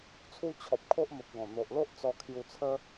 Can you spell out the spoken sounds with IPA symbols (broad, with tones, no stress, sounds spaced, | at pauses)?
t͡sʰ u˦ t͡ɕʰ ɔ˨ p̚ kʰ o˦ ʔ m ə˨ p̚ ɡ ɔ̃˨˩ n̪ o˨ ʔ l o˦ ʔ t͡s ɔ˧ kʰ j u˧ t͡sʰ ə˦